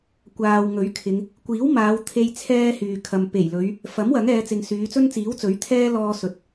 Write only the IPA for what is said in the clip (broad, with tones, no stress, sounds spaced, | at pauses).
kʷ aː˨ w ŋ ɵ˨˥ ɥ kʰ ɪ˨˧ ŋ | kʷ iː˨˥ w m aː˨˧ w t̪ʰ e˧ j t͡sʰ ɛː˥ h yː˨ kʰ ɐ˨ m p e˨˩ j l ɵ˨˧ ɥ | f ɐ˨˥ m w ɐ˨˥ ŋ ɛː˨˧ t͡s ɪ˨ ŋ s yː˨˧ t͡s ɵ˥ n t͡s iː˨˥ w t͡s ɵ˨˥ ɥ t̪ʰ ɛː˥ l ɔː˧ s ɵ˨˥ t̚